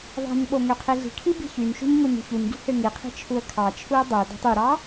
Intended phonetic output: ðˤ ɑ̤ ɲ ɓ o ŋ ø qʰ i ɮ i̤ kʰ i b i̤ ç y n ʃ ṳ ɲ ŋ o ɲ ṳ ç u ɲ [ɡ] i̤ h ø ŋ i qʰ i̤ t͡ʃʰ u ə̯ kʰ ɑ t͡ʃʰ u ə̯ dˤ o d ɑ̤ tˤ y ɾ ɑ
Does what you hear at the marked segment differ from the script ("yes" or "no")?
no